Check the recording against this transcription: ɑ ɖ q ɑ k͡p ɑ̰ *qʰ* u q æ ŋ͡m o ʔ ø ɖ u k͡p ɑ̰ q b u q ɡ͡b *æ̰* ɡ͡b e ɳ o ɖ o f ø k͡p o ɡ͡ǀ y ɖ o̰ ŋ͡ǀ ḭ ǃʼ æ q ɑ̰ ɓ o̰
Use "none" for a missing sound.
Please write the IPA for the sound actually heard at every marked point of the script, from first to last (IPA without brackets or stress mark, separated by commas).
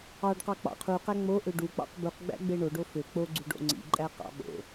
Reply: qʰ, æ̰